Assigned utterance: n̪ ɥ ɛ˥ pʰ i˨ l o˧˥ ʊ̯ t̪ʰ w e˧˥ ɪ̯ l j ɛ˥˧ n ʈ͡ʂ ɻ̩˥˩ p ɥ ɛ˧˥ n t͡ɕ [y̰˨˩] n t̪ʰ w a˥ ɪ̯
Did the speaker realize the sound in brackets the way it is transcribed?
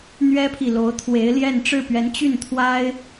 no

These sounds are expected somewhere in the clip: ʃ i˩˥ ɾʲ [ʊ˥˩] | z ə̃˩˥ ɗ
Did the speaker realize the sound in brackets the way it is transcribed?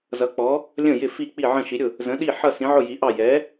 yes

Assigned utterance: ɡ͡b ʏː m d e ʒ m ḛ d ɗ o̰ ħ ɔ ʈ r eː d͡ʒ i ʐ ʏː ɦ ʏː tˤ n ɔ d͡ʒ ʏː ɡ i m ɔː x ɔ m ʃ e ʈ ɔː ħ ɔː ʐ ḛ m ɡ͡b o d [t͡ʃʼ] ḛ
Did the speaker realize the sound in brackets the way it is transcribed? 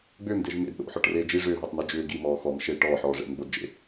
no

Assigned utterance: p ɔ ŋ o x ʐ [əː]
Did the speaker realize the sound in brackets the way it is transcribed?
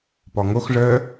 yes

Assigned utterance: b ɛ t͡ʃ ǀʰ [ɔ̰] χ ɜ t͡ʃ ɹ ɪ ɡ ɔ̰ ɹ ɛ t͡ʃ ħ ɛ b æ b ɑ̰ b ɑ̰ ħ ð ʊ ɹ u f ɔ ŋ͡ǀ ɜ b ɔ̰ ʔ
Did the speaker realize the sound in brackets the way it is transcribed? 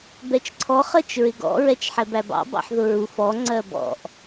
no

